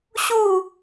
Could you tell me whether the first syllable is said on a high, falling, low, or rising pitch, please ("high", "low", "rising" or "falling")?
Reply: falling